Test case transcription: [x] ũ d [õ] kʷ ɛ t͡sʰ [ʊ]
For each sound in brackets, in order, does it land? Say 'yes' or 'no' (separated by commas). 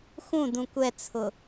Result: yes, no, yes